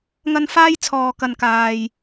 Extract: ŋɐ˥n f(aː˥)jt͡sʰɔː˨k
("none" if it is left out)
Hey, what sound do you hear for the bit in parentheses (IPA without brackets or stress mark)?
aː˥